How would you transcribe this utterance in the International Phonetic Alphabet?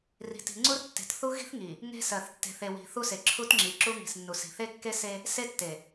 r i̤˨ t i̤˨ ŋ͡ǀ u˦ r tː e̤˨ t θ u˦ ɣ i̤˦ θ ŋ i˨ | ŋ e̤˦ s ɜ˨ θ tː e̤˨ θ e˨ w i̤˨ θ u˦ s e˨ ǁʰ u˦ t ŋ͡ǁ i˨ ǁ u˦ ŋ i̤˨ s nː u˨ s i̤˨ θ e˦ kː e˦ s e˦ | s e˦ tː e˨

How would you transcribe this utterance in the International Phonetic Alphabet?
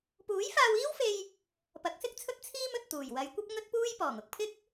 p uː˨˥ j f aː˧ w iː˥ w f e˧ j | p ɐ˨˥ k̚ s ɪ˥ k̚ t͡sʰ ɵ˥ t̚ t͡sʰ iː˥ m ɵ˨ t̚ t̪ uː˨˩ j w ɐ˨˧ j kʷ ɐ˥ p̚ ŋ ɵ˥ t̚ p uː˥ j p ɔː˨˩ ŋ ʊ˧ k̚ pʰ ɪ˥ k̚

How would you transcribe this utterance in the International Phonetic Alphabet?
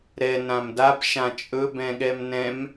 ɾ ɛ n ã m d a b ʃ ã t͡ʃʼ ɵ b ɛ̃ ɠ ɛ m n ɛ̃ m

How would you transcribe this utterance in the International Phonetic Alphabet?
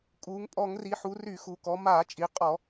kʼ uː˩˧ ŋ pʼ ɔ˧˩˧ ŋ r i˩˧ ħ u˩˧ r y˧˩˧ x u˩˧ k ɔ˩˧ m aː˧˩˧ t͡ʃʼ i˩˧ qʼ ɔ˧˩˧

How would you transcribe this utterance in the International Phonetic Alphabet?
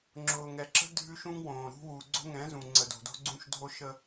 ŋ͡ǁ ʊː˨ ŋ ɛ˨ ǁ ə̤˦ dʱ ʉ˦ ʃ ũ˦ ŋ w õː˨ ɾ ṳ˦ w u˨ ɡ͡ǀ o̤˦ ŋ ɛ̃˨˦ z ũ˨ ŋ͡ǀ ə˨ d o̤˨ d o̤˦ ɡ͡ǀ ũ˦ ʃ dʱ o˦ ʃ ə˦

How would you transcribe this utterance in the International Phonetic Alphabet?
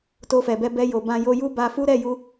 t o˧ f ɛ˨ b ɛ˧ b ɛ˧ j o˨ b ã˧ j o˧ j u˦ b a˧ f u˦ ɾ ɛ˦˨ j u˧

